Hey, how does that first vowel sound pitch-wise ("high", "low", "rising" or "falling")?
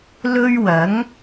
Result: high